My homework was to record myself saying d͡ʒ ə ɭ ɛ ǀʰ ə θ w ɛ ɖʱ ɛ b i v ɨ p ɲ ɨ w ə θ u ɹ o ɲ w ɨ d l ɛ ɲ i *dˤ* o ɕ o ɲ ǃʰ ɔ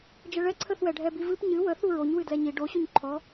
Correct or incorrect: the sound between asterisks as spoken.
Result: incorrect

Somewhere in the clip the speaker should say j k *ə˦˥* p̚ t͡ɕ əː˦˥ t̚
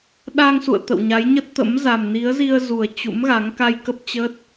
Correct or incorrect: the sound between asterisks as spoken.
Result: correct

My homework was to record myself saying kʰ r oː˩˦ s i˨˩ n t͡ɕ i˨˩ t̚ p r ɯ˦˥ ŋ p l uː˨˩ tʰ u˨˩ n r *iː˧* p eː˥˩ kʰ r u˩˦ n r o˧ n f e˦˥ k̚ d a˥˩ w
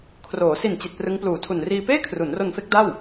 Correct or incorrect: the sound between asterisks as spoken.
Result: correct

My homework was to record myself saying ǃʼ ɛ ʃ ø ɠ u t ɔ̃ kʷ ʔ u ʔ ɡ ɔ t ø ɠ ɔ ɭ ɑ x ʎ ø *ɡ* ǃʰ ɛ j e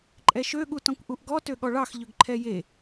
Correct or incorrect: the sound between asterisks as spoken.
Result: correct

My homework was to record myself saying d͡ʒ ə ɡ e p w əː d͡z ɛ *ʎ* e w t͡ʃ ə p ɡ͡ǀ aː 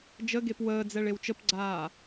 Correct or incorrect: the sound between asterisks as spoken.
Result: incorrect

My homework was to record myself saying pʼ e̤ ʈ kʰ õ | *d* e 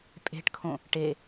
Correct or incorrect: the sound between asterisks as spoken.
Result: incorrect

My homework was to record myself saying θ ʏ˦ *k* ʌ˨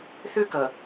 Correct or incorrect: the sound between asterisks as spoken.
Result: correct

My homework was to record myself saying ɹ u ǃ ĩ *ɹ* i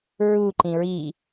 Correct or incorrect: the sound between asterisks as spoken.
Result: correct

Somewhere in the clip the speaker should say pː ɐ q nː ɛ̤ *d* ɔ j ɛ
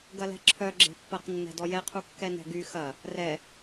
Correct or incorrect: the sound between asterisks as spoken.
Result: correct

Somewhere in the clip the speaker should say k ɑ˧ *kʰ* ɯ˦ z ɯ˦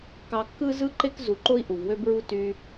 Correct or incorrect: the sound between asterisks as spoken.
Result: incorrect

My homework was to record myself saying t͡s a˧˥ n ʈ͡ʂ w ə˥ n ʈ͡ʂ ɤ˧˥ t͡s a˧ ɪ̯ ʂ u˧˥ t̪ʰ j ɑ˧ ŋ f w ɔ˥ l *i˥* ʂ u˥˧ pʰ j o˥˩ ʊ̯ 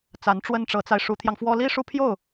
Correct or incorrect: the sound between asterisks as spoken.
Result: correct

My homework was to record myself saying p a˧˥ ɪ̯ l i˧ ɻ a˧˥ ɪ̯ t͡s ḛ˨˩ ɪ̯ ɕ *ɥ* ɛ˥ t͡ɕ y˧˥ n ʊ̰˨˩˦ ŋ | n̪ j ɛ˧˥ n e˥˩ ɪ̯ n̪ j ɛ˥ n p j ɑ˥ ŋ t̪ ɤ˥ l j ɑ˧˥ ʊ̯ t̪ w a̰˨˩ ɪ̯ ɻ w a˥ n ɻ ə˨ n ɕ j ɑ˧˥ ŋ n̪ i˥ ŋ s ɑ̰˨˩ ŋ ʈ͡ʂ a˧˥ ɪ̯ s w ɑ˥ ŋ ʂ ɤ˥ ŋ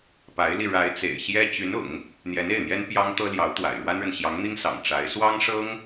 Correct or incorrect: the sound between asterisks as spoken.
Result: incorrect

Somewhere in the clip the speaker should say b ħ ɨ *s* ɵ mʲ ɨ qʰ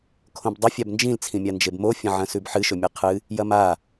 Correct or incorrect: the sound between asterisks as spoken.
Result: incorrect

